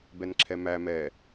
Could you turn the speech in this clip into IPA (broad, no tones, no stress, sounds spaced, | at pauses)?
b ɛ n ǁʰ ɛ m æ m ɛ